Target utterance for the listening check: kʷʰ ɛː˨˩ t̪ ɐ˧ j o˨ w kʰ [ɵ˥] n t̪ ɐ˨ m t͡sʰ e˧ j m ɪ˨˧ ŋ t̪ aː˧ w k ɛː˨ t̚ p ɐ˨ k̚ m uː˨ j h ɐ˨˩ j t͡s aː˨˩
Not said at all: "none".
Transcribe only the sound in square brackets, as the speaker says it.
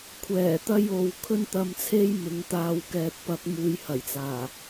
ɵ˧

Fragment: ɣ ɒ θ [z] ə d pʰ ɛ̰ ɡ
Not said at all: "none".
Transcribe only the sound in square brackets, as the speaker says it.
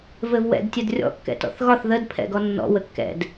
ð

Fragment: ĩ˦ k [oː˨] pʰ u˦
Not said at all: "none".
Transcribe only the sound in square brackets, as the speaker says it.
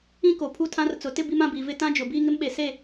o˨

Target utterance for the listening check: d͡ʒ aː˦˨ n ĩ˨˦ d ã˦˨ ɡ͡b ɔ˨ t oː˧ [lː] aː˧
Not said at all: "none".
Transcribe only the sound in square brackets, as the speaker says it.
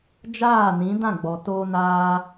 n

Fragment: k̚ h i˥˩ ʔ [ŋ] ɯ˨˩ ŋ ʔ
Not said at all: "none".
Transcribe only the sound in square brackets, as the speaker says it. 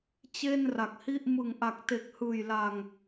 m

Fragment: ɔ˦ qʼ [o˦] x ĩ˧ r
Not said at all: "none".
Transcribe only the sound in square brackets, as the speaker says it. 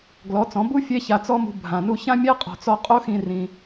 o˦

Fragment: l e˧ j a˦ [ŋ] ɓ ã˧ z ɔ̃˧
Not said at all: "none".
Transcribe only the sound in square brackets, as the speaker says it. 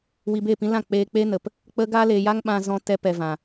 ŋ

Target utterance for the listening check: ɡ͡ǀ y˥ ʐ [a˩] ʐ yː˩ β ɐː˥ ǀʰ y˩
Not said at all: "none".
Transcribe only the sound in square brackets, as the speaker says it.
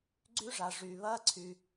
a˩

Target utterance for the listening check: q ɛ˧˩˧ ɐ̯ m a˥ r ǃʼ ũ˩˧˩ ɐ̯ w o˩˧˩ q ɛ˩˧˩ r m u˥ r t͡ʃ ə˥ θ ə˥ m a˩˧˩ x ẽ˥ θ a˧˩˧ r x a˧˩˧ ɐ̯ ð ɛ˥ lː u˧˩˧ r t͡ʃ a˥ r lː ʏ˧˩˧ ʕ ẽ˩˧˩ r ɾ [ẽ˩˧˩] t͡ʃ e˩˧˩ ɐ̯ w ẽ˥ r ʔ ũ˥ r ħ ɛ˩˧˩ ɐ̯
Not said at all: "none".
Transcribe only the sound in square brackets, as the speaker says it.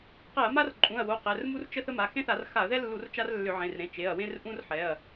ẽ˩˧˩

